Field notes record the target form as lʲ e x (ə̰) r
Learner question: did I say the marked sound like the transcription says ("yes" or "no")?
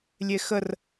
no